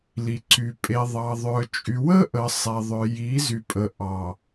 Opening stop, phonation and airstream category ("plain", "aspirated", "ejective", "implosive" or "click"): click